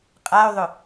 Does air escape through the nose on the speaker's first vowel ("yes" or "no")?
no